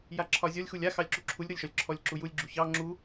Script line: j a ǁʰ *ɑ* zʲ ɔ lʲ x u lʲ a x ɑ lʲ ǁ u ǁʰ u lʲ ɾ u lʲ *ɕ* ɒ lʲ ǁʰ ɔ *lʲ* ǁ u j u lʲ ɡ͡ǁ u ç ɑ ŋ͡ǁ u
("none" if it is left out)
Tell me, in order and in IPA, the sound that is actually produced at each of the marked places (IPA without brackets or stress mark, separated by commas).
ɒ, ʃ, lʲ